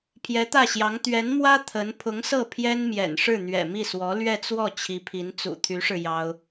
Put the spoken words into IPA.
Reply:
pʰ j ɛ˧˥ t̪ ä˥˩ ɕ j ɑ˧˥ ŋ t̪ ɥ ɛ˧˥ n m w ä˥ t̪ʰ ə˧˥ n pʰ ʊ˧˥ ŋ s ɤ˥˩ pʰ j ɛ˥ n m j ɛ̰˨˩ n ʂ ɻ̩˥˩ n̪ ɥ ɛ̰˨˩ m i˥˩ s w ɔ˧˥ l ɥ ɛ˥˧ t͡s w ɔ˥˩ t͡ɕʰ i˧˥ pʰ i˧˥ n t͡s ṵ˨˩ t̪ʰ y˧˥ ʂ ɻ̩˧ j ɑ˥ ʊ̯

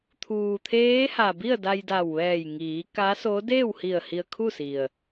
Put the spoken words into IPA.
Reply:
t̪ʰ uː˩ t̪ʰ eː˧˥ h a˩ b i˥˨ ə̯ d a˧ j d a˧˩ w ʋ ɛː˧˩ j ŋ iː˩˧ k a˧˥ s o˧˥ d eː˥˨ w h i˧˩ ə̯ h i˧ ə̯ kʰ u˥˨ s i˩ ə̯

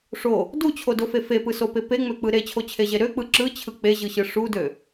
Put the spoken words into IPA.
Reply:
ʂ o | d u t͡ɕʰ o d o f e f e p ɯ s o p e p e ŋ͡m ø k͡p ɯ ɾ e t͡ɕʰ o t͡ɕʰ e ʑ e ɾ ø k͡p ɯ ǁ ɯ t͡ɕʰ ɯ k͡p e ʑ ɯ ɕ ɯ ʂ u d ø

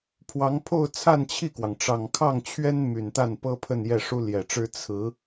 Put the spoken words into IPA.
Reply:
pʰ w ɑ˧˥ ŋ pʰ o˥˧ ʊ̯ t͡sʰ a˥˧ n t͡ɕʰ i˥˩ k w ɑ˩ ŋ ʈ͡ʂ ɑ˨˩ ŋ kʰ ɑ˥˩ ŋ t͡ɕʰ ɥ ɛ˥ n m y˨˩ n t̪ a˥˩ n p ɤ˥ pʰ ə˥˧ n j ɛ˥˩ ʂ u˥ l j ɛ˨˩ ʈ͡ʂ ɻ̩˥ t͡sʰ ɹ̩˧˥

